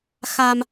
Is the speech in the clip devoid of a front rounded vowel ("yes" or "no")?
yes